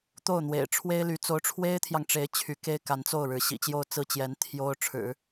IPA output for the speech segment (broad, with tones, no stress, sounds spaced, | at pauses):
t̪ o˥˩ ʊ̯ n̪ w ḛ˨˩ ɪ̯ ʈ͡ʂʰ w e˥ ɪ̯ l y˧˥ t͡s o˧˥ ʊ̯ ʈ͡ʂʰ w e˥ ɪ̯ t̪ʰ j ɑ˨ ŋ ʈ͡ʂ e˧˥ ɪ̯ t͡ɕʰ y˧˥ k e˥ ɪ̯ k a˧˥ n t͡s o˥˩ ʊ̯ ɻ ɻ̩˧˥ ɕ ḭ˨˩ t͡ɕ j o˥˧ ʊ̯ t͡s ɹ̩˥˩ t͡ɕ j ɛ˧˥ n t̪ʰ j o˥ ʊ̯ ʈ͡ʂʰ ɻ̩˨˩˦